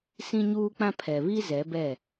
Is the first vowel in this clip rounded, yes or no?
no